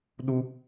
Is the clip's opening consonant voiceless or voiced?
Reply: voiced